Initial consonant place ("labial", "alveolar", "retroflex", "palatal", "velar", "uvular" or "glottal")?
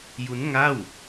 palatal